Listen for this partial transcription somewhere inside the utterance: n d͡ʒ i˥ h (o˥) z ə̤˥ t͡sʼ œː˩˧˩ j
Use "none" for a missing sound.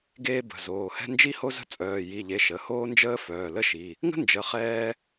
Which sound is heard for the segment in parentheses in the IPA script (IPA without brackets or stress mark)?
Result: o˥